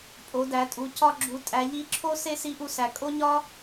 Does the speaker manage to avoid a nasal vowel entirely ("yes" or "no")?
yes